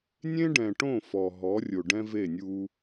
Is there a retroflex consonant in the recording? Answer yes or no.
yes